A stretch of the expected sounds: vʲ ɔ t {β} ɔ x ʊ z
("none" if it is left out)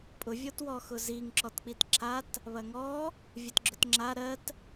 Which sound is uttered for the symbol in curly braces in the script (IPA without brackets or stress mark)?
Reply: w